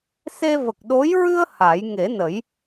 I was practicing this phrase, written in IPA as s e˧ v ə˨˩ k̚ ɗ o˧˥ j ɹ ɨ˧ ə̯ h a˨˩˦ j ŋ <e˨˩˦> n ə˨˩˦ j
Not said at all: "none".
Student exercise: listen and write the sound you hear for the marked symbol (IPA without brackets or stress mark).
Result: e˨˩˦